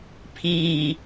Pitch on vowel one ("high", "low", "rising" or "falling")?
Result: low